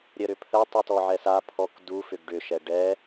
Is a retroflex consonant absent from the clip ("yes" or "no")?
no